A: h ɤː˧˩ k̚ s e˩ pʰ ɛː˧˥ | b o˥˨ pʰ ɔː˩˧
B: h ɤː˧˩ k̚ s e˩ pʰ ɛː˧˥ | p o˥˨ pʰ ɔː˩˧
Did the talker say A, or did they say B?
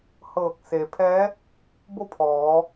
A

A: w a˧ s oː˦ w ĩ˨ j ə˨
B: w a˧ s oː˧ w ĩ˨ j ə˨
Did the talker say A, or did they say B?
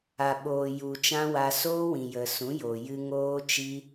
A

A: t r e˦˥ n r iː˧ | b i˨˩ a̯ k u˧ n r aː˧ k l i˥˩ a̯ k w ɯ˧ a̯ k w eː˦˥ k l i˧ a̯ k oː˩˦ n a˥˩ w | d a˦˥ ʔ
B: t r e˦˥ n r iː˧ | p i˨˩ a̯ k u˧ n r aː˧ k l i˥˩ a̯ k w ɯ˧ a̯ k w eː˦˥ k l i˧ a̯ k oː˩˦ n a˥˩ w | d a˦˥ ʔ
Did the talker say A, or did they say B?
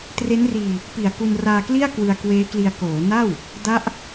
B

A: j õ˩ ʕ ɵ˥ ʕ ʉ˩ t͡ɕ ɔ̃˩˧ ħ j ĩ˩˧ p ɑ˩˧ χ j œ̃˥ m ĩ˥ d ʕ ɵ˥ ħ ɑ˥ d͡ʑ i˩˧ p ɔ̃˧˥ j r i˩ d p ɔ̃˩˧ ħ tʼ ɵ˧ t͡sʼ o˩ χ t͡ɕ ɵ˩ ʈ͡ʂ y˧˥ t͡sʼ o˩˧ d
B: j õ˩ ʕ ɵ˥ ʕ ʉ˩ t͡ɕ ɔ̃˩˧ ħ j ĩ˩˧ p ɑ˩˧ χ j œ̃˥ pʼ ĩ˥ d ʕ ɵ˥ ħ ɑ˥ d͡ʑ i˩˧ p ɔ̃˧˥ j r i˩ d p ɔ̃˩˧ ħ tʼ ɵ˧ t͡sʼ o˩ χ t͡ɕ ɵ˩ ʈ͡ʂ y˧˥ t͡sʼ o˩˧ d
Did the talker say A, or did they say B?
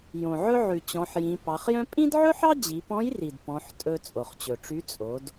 B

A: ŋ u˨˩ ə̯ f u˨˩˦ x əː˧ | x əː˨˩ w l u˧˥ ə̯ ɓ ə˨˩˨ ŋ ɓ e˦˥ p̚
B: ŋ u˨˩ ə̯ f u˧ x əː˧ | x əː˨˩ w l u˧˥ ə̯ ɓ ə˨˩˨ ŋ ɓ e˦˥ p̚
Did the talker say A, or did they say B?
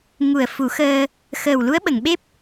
A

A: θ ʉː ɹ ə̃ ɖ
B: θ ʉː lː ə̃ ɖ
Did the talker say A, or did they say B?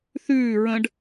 A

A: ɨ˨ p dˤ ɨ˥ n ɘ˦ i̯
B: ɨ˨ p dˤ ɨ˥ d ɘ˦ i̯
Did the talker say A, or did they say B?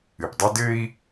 B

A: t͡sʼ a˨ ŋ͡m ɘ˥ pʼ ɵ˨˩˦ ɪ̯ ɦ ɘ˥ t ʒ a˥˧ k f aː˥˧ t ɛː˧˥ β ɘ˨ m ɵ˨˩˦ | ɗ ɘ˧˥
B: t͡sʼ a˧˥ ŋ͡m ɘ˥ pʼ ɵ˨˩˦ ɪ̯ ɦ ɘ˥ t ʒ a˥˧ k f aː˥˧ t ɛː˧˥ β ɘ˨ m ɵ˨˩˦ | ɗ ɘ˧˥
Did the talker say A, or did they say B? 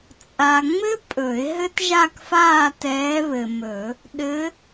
A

